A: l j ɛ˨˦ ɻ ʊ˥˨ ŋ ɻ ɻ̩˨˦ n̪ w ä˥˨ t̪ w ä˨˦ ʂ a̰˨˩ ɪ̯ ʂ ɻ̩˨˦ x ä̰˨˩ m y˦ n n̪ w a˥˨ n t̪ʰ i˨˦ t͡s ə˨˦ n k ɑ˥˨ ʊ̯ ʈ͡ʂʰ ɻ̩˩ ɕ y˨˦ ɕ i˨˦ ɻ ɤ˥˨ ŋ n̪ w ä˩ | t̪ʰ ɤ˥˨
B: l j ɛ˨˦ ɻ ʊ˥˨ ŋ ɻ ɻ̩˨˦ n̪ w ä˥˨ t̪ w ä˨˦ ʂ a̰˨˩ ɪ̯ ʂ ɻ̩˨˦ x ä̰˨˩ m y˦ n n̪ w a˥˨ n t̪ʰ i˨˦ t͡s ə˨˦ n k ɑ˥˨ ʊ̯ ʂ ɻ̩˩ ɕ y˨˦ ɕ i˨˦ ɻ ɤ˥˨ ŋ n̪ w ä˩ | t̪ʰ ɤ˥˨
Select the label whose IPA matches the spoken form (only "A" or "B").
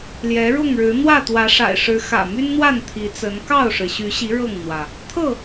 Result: B